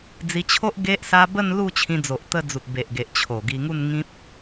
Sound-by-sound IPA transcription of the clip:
d͡z i˧ t͡ɕʰ o˦ ʔ ɡ e˦ ʔ s a˦ b ə˥˧ n l u˥˧ t͡ɕʰ ĩ˧ d͡z o˨ ʔ t̪ ə˧ d͡z u˨ t̚ b e˨ ʔ ɡ e˨ ʔ t͡ɕʰ o˨˩ ɡ i˧ ŋ u˥˧ n ŋ ĩ˦ p̚

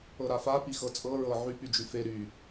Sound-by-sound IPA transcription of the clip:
ɤ ɾ a f a p i x ɤ t͡sʼ ɤ ɹ ɤ ʕ y p y d͡ʒ y f e ɾ y

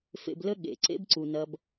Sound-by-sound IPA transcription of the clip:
f ḛ˨ b l ə˦ ɠ ḛ˨ ǀ ḛ˦ b ǀ u˨ n ɐ˦ b

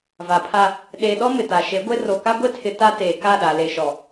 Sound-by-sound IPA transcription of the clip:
v a˨ pʰ a˦ | ɗ e˨ ɗ ɔ˦ m ɪ˨ t a˨ ʃ e˨˦ ɡʷ e˦ r o˨ k a˦ ɡʷ e˦ tʰ ɪ˨ t a˦ t eː˨ k a˦˨ ɗ a˨ l e˨ ʃ ɔ˨

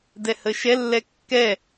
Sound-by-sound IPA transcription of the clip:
d ɛ h ə ʃ ɛ lː ɛ kː ɛ

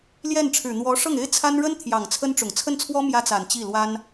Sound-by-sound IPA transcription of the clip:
l j ɛ˥˩ n ʈ͡ʂʰ ɻ̩˨˩ n̪ w ɔ˧˥ ʂ ɤ˥˩ ŋ e˥ ɪ̯ t͡sʰ a˥ n ɻ ə˥ n t̪ʰ j ɑ˨˩ ŋ t͡sʰ ə˥ n ʈ͡ʂ ʊ˨˩ ŋ t͡sʰ ə˥˩ n t͡sʰ w ɔ˥ m j ä˥ t͡s a˨˩ n t͡ɕ i˥˩ l w a˥ n

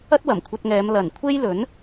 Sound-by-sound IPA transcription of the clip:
ɐ˥ t̚ w ɐ˨˩ m kʷʰ ɐ˧ t̚ ŋ ɛː˨˧ m l ɐ˨˩ n kʷʰ e˥ j l ɵ˨˥ n

